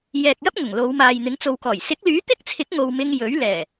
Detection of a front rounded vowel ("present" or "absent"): present